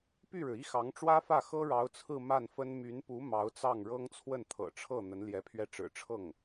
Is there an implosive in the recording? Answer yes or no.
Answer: no